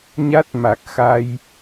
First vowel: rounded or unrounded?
unrounded